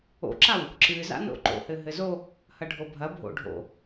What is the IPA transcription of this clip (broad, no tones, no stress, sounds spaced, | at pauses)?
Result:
o̰ ǁ a w | ǁ ɨ z a̰ n o̰ ǃ o̰ h ɘ ɦ ɘ z o | h ɐ ɖʱ o bʱ ɐ bʱ o̰ ɖʱ o̰